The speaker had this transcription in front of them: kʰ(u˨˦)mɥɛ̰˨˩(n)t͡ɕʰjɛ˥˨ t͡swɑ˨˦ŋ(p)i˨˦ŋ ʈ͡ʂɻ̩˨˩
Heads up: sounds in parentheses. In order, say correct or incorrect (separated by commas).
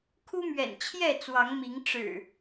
incorrect, correct, incorrect